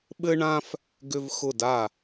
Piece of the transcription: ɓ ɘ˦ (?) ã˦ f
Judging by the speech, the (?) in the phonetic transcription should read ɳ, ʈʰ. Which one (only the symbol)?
ɳ